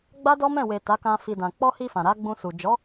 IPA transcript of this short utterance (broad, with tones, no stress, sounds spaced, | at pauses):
ɡ͡b a˦ d ɔ˦ m ɛ̃˦˨ w e˨ t a˨˦ k ã˧ f i˨ d ã˨ k͡p ɔ˧ h i˧ f ã˨ ɾ a˨˦ ɡ͡b ũ˧ s u˨ d͡ʒ ɔ˨˦